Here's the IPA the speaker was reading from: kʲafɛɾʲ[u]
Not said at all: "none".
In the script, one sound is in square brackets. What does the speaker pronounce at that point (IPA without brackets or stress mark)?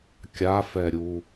u